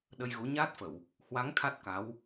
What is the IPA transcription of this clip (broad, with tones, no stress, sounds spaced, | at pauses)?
ɗ ə˧ j ɣ u˨˦ ɲ aː˦˥ t̚ f ə˧˩˨ w | h w a˨˦ ŋ t̪ʰ a˦˥ t̚ k a˨˦ w